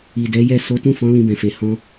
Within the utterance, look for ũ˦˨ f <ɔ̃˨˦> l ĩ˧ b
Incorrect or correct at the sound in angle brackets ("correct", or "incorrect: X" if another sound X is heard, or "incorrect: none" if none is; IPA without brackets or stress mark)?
correct